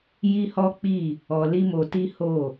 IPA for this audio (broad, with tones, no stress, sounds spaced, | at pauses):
j i˦ h ɔ˦ k͡p i˦˨ | ɔ˧ l i˦ m o˧ t i˦ h o˦˨